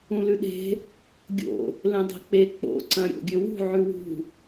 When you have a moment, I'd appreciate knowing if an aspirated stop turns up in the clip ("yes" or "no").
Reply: no